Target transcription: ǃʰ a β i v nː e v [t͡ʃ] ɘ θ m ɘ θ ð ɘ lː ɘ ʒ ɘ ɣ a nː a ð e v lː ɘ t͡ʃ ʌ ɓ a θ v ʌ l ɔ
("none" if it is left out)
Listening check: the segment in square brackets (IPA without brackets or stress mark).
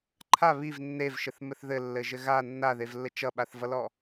ʃ